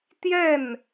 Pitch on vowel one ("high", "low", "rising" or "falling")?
falling